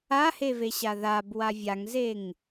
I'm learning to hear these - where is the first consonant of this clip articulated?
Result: throat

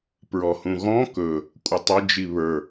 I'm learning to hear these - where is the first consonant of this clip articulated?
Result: lips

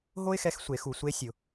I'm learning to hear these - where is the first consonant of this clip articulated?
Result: throat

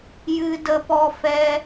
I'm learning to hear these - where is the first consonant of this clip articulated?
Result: palate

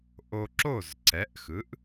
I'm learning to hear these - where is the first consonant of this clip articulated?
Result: throat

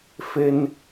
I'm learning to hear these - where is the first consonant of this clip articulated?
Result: lips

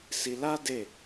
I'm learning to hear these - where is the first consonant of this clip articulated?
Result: tongue tip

